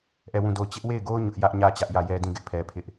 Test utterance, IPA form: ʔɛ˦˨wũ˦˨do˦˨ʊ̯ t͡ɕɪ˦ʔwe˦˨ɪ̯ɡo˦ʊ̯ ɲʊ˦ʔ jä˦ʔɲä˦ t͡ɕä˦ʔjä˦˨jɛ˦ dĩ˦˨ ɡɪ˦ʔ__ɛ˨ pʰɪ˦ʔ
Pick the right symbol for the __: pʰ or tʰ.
pʰ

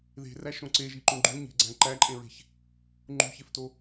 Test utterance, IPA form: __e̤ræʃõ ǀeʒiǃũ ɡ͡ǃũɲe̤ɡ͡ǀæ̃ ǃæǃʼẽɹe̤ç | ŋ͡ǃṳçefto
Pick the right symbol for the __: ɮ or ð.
ð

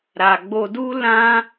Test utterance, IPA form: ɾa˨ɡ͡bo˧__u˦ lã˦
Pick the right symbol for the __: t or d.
d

